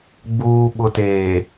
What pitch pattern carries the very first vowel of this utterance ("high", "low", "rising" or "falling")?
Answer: low